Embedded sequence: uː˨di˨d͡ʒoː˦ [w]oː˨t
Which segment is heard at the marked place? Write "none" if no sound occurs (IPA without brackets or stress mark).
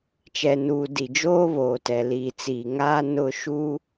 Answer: β